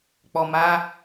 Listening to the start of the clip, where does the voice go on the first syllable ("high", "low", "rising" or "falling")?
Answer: low